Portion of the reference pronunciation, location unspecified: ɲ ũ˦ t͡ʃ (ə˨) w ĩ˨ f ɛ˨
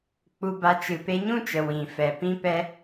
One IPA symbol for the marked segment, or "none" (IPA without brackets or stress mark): ə˨